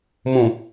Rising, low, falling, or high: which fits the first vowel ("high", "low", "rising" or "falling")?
low